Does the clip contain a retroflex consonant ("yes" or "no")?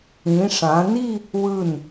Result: yes